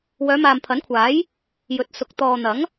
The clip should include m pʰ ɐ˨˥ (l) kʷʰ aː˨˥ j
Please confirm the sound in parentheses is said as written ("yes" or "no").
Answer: no